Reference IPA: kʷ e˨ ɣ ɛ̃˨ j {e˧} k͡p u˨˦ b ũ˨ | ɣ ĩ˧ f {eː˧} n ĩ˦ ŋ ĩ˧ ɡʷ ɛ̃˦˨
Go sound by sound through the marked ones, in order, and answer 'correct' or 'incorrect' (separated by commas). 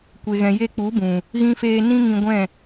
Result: correct, correct